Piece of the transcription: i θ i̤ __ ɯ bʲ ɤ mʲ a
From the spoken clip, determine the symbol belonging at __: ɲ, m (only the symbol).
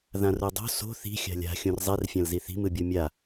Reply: m